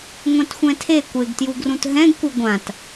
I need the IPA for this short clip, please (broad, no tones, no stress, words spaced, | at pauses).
ŋʷɛ̃txʷɛ̃tʰe kʷeɡtjuɡrũt ɦɛ̃ɡkʷɯ ɡʷãt